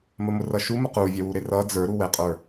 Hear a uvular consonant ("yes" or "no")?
yes